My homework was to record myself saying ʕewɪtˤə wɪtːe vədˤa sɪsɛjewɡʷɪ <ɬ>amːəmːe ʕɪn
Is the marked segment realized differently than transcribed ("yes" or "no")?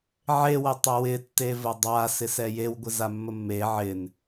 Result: yes